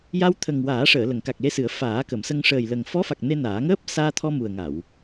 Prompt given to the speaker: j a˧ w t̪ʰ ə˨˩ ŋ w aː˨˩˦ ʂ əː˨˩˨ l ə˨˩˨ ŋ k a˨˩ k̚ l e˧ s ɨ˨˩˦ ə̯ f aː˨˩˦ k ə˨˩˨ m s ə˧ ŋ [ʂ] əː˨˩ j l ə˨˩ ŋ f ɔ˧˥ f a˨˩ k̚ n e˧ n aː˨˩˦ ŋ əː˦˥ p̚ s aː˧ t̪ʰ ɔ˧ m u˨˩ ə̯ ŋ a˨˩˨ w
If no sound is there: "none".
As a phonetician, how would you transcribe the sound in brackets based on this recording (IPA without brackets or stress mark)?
ʂ